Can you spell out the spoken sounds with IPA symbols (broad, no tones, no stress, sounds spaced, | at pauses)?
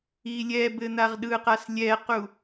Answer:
i lʲ ɛ b ɘ n̪ a ʁ ɗ ɯ q a s lʲ ɛ q u